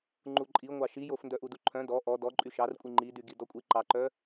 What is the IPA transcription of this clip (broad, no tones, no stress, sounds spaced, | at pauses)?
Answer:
ŋ͡ǃ u ǃʼ i ŋʷ ɑ ʃ i j o f n d œ ʔ u d u ǃʰ œ̃ d ɔ ʔ ɔ d ɔ ǃʼ y ʃ ɑ r kʷʼ i ŋ͡ǃ i d y ɡ i d ɔ kʷʼ i ǃ ɑ ǃ œ